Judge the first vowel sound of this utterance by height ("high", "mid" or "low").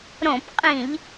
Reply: mid